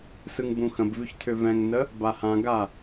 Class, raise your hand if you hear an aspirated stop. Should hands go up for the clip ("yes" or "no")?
yes